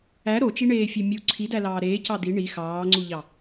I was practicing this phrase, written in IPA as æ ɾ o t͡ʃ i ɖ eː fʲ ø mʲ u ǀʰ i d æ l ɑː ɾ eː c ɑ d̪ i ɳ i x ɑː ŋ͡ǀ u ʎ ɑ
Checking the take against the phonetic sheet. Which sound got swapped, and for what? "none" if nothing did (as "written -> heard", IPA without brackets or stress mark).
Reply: ɖ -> ɳ